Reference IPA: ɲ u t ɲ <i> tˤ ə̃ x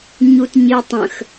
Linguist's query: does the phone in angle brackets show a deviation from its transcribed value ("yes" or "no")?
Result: no